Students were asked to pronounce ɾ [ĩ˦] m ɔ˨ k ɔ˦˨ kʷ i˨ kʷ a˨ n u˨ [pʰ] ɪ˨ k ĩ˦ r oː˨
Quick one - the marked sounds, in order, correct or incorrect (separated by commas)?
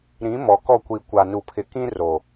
incorrect, correct